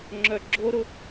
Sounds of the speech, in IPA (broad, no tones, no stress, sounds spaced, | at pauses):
ŋ͡ǁ œ ɡ͡ǁ o ɾ ʊ